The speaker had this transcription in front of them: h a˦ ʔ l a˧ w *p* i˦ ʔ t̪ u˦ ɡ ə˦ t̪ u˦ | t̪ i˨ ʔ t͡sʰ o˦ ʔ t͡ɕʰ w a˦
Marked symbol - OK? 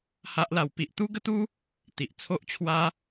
yes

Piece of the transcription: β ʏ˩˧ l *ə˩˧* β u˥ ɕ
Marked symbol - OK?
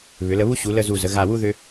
no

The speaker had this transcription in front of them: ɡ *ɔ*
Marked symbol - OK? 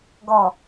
yes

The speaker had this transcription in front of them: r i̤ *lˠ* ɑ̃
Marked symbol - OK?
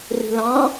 no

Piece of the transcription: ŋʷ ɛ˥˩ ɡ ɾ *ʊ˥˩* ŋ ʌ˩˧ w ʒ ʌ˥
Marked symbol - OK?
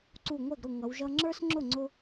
yes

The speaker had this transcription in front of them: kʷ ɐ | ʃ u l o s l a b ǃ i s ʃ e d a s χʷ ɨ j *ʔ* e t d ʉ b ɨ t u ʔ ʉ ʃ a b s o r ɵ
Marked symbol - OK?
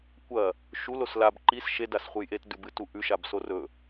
yes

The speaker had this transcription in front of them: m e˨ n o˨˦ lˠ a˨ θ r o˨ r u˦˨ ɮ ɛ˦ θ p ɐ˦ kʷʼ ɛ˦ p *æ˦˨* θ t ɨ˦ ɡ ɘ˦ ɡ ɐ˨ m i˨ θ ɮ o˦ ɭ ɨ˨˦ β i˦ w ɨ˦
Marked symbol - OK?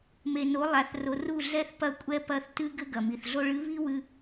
no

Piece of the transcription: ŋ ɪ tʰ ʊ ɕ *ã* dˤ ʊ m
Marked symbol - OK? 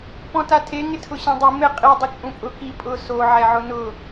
yes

